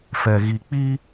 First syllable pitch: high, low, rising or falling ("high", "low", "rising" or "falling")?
low